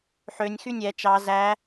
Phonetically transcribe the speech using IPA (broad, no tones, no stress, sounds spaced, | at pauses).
ħ ø nʲ x y nʲ ɛ t͡ʃ ɑ z æ